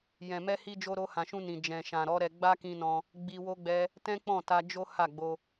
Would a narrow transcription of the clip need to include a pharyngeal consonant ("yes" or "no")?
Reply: no